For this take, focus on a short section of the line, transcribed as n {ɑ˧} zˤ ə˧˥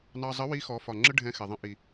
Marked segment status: correct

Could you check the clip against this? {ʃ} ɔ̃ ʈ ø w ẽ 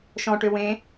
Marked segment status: correct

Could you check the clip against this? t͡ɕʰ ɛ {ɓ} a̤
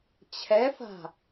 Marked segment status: incorrect: f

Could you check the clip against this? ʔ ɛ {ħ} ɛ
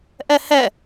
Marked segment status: incorrect: h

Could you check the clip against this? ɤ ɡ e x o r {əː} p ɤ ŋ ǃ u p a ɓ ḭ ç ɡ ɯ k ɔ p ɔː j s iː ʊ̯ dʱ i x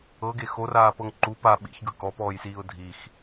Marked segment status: incorrect: aː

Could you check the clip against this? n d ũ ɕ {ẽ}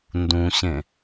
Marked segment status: correct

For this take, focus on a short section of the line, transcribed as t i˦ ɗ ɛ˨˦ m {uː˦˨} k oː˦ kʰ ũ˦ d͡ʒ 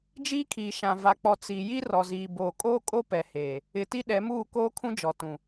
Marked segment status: correct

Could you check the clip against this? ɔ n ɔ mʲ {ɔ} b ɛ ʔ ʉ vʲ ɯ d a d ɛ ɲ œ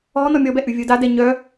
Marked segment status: correct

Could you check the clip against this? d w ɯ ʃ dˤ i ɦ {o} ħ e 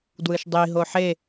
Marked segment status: correct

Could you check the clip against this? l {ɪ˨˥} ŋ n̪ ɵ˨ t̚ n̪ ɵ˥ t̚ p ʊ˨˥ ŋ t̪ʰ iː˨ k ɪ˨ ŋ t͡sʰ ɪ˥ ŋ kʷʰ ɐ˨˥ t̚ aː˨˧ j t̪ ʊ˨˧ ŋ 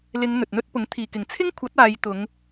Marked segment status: incorrect: ɪ˨˧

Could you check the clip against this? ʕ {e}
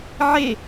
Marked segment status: correct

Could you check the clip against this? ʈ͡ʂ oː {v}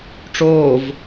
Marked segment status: correct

